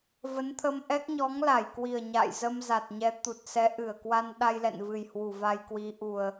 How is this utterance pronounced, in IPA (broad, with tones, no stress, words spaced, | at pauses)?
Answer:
və˨˦nt̪ʰə˧mʔɛ˦˥k̚ ɲɔ˨˦ŋla˧˩jkwi˨˩ə̯ ɲa̰˧˨jzə˧mza˨˩t̚ɲɛ˨˦ t̪u˨˩t̚sɛ˨˦ ʔɨ˧˩ə̯ kwa˧nɗa˧jlɛ̰˧˨nvɨ˨˩j hwu˧˩va˧jkwi˨˦ʔu˨˩ə̯